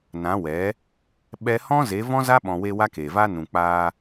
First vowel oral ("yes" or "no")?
no